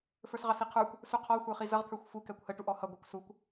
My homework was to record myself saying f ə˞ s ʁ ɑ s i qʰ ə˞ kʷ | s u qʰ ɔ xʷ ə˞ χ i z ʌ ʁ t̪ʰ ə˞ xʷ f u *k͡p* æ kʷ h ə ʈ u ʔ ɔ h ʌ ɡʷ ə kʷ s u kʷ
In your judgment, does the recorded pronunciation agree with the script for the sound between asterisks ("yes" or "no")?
no